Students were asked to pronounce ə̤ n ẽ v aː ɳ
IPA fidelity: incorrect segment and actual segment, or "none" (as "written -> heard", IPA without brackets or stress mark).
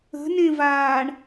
none